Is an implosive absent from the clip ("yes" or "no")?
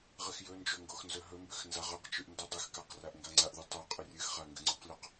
yes